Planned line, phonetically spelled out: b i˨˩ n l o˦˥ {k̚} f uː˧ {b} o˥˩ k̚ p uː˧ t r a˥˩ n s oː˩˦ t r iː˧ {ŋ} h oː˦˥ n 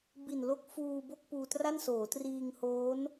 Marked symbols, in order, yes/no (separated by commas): yes, yes, yes